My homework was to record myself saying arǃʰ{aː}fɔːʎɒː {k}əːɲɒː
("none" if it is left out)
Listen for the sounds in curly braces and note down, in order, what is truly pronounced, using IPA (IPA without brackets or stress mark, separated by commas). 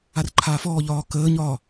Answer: aː, k